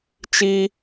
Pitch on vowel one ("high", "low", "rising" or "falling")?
high